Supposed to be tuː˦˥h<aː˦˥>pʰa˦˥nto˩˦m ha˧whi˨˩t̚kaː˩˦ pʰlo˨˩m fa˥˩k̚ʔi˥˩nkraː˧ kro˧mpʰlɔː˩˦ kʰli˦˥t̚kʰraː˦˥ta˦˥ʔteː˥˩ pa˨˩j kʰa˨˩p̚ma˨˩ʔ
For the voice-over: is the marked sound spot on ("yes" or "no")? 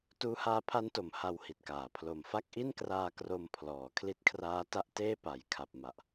yes